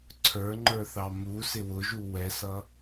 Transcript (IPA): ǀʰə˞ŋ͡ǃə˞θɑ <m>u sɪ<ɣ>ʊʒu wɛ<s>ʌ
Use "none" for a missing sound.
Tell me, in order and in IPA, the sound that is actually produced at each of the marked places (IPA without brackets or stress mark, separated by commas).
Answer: m, w, s